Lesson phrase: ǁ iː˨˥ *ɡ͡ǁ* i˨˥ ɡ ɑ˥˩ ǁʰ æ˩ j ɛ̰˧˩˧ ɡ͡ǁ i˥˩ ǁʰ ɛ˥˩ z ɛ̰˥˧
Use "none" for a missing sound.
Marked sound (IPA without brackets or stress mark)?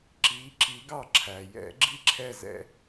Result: ǁ